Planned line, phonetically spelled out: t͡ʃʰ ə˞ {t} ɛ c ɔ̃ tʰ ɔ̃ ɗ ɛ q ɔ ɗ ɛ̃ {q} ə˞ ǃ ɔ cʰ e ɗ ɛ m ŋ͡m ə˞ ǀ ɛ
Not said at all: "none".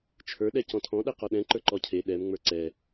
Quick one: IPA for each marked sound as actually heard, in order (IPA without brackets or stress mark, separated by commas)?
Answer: ɗ, ǃ